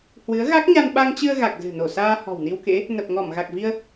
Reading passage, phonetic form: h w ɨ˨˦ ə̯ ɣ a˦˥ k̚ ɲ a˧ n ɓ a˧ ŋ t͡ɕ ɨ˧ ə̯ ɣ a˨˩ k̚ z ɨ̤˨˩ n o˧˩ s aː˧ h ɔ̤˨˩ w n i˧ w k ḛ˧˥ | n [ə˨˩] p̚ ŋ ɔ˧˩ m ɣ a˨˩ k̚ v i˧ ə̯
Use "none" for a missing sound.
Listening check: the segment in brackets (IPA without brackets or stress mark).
ə˨˩